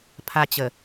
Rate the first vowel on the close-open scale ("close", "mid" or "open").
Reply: open